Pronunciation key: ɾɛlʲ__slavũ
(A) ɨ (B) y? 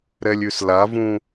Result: B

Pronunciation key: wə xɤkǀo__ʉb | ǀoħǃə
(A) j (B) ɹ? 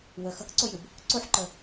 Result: A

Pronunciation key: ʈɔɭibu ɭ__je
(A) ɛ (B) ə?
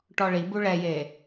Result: A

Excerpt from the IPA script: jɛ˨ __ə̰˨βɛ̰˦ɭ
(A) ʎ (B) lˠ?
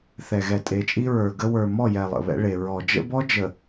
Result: B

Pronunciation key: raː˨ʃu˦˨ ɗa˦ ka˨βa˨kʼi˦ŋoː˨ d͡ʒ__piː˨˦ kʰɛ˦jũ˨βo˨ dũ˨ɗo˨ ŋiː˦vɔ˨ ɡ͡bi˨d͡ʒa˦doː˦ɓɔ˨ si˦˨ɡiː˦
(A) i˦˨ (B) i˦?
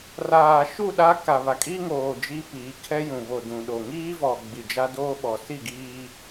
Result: B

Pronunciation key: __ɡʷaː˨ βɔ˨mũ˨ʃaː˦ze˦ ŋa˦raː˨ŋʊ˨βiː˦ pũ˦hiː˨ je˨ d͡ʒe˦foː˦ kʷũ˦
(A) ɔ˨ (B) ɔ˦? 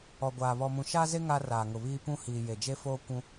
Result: A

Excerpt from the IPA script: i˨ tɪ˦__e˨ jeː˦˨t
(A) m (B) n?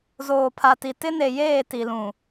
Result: B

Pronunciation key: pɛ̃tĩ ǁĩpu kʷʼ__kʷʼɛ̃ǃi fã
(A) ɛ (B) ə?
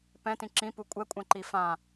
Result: A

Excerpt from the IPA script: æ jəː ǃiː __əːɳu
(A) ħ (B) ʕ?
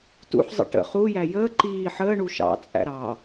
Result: A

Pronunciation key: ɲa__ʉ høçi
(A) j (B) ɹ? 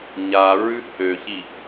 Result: B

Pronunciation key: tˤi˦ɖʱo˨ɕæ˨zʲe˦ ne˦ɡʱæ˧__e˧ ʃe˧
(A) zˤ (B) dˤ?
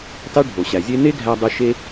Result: B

